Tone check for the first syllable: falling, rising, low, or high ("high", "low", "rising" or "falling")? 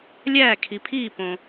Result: falling